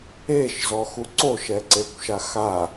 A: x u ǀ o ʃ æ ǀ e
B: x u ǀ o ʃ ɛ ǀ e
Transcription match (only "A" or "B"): B